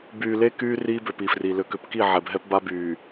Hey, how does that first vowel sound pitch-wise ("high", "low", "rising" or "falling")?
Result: low